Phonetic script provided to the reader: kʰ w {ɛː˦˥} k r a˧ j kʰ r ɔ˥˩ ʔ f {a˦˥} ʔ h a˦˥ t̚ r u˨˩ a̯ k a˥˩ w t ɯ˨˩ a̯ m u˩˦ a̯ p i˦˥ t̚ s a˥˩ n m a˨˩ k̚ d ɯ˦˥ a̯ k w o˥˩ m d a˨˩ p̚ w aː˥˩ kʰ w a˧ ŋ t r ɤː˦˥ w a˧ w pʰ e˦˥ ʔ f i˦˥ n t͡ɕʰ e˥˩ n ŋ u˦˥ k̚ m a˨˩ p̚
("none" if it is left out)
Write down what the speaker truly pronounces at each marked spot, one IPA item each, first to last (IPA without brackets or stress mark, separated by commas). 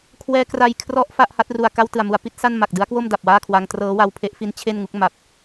ɛː˦˥, a˥˩